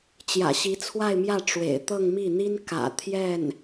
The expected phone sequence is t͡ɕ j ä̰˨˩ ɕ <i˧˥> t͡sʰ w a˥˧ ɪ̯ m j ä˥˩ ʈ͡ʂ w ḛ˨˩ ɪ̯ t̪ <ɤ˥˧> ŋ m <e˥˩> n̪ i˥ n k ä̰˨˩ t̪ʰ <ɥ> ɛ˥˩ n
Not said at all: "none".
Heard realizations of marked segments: i˧˥, ɤ˥˧, i˥˩, j

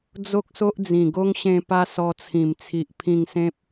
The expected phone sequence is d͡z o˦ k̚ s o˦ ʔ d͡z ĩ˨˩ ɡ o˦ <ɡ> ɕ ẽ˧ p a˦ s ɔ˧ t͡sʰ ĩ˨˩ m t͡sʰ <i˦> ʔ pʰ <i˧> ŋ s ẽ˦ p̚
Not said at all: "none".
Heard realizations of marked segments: ŋ, i˨, ĩ˧

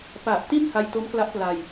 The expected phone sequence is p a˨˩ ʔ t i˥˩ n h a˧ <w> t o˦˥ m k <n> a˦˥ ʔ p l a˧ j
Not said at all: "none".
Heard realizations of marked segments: j, l

